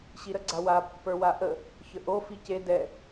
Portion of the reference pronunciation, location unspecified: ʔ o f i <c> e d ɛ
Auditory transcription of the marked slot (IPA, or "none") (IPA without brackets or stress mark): c